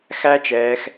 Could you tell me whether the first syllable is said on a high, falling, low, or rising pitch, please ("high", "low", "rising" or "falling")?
high